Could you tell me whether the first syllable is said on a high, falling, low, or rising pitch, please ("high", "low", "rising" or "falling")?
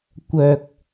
low